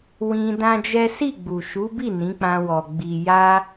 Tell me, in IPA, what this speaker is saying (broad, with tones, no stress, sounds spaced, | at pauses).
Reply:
w ĩ˧ d ã˦ d͡ʒ ɛ˦ s i˦˨ ɡ͡b u˨ ʃ u˨˦ b i˦˨ n ĩ˨˦ k͡p ã˧ w ɔ˨ ɡ͡b i˨ j a˧